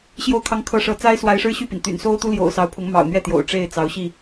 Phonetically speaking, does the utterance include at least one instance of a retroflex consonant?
yes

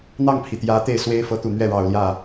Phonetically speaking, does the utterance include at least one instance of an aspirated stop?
yes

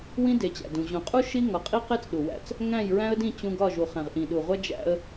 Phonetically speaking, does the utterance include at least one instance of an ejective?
yes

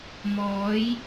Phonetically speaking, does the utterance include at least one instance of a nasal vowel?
no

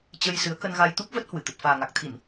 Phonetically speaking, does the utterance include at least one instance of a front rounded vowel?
no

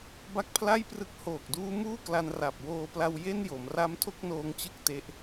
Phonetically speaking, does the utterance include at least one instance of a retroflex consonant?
no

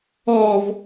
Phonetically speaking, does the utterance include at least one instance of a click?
no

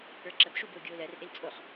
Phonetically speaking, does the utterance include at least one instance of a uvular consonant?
yes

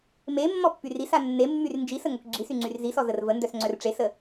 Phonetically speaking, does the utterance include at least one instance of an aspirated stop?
no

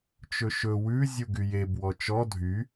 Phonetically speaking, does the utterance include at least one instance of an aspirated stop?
no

